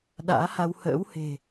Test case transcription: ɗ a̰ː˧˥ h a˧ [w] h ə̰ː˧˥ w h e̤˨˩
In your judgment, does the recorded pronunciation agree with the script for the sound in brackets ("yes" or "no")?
yes